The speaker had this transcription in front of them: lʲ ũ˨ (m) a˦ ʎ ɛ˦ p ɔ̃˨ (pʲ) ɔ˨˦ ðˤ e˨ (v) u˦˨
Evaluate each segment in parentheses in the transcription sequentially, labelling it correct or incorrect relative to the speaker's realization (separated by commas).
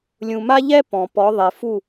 correct, incorrect, incorrect